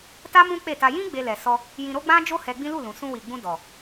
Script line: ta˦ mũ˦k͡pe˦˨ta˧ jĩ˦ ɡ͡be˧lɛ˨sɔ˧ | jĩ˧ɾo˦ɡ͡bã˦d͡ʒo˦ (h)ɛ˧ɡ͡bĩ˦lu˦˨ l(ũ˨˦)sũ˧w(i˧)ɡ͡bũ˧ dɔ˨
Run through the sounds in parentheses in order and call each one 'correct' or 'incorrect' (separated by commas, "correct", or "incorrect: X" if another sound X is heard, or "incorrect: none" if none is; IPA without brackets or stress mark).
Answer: correct, incorrect: ũ˨, incorrect: i˨